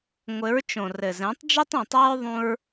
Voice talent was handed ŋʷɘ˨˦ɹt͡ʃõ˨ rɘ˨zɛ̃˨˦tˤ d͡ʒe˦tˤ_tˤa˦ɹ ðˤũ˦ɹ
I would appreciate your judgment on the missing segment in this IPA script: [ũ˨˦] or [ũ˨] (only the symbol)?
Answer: ũ˨